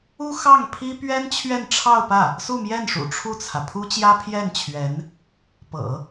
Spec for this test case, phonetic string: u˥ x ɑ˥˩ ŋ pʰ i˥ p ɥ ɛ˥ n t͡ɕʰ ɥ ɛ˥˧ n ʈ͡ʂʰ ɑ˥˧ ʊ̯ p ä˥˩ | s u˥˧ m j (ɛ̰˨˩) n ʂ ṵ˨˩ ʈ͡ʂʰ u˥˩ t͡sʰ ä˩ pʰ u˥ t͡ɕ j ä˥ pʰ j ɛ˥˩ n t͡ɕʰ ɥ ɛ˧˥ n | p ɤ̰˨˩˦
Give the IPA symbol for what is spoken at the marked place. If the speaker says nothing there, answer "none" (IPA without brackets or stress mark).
ɛ˥˩